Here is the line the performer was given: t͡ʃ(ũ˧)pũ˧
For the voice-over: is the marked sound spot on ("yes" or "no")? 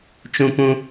yes